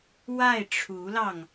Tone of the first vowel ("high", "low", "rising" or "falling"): falling